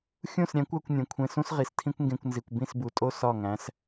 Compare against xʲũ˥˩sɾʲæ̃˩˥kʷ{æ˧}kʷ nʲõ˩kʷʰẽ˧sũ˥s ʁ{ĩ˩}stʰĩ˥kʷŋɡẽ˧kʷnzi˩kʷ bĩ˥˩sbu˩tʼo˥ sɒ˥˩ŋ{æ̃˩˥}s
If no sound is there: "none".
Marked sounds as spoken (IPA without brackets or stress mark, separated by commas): æ˧, i˩, æ̃˩˥